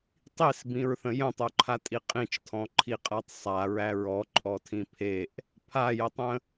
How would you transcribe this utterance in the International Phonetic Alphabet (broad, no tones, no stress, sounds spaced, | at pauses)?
tˤ i s b ĩ ɹ θ ə̃ j ə̃ tˤ o ǃʰ a tʼ i qʼ ĩ t͡ʃ tʰ ɔ̃ ǃʰ i qʼ a tˤ sˤ a ɹ æ ɹ ɔ ǃʼ ɔ tʰ ĩ pʰ e ʔ | pʰ a j ə tˤ ə̃